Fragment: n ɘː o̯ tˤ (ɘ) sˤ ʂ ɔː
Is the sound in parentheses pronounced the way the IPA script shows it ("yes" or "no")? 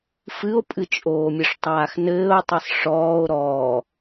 yes